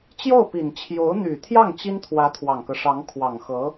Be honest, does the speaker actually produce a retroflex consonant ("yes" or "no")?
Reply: yes